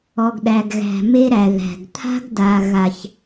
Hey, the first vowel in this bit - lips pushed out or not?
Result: yes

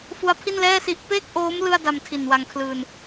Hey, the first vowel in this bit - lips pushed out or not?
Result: yes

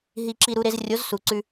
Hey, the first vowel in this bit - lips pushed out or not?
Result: no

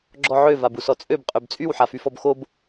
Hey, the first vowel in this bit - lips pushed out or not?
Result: yes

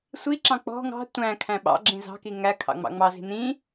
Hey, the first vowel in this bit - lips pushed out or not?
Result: no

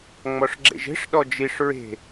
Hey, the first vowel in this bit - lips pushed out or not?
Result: yes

